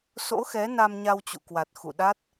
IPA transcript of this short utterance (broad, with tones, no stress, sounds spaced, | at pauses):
s o̰˧˥ x ɛ˨˦ n a˧ m ɲ a˧ w t͡ɕ ṵ˧˨ k w a˨˩ t̚ x ṵ˧˨ ɗ a˦˥ t̚